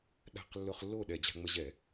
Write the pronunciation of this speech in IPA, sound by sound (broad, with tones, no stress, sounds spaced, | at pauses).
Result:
ɗ a̤˥˩ q lː ʊ˧ χ lː o˥˩ ɗ ɛ˧˩˧ d͡ʑ a̤˧ ŋ͡m ə˧ ʑ ɛ˧˩˧